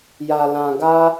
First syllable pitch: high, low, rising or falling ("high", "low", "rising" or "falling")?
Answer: low